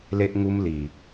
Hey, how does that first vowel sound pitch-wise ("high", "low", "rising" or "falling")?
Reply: high